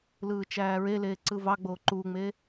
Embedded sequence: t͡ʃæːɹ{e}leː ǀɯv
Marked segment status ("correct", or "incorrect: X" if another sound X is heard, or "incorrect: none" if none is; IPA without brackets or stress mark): correct